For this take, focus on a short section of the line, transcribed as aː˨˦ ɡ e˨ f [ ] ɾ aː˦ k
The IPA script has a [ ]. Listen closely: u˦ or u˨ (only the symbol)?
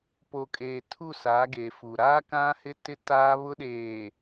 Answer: u˨